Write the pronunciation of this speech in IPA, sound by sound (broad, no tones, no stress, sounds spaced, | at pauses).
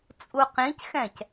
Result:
t͡sʼ u q ĩ c x ɛ̃ c